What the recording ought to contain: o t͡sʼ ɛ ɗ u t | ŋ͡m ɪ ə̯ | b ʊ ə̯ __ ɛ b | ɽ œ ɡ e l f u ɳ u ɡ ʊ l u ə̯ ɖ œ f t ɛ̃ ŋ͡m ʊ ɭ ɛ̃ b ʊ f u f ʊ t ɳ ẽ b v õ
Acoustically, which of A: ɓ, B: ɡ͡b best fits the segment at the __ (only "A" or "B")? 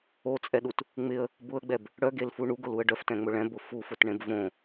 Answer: B